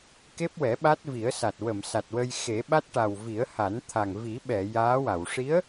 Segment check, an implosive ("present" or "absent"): present